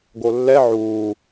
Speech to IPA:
ɡ o lː ɛ ʕ uː

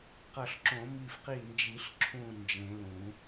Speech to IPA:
q ʌ˧˩ ɬ ǁ õ˨˩˦ m i˧˩ f q i˧˩ n d͡ʒ i˨˩˦ ɬ ǁʰ ũ˧˩ n d͡ʒ ẽ˨˩˦ l ũ˨˩˦

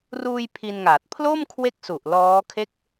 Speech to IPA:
r uː˧ j pʰ i˧ n ŋ aː˨˩ t̚ pʰ l o˥˩ m kʰ w e˦˥ k̚ s u˨˩ ʔ l ɔː˦˥ kʰ e˥˩ k̚

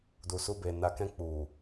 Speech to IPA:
d u˨ s u˧ b e˨ n a˨ k ɛ̃˧ k͡p u˨

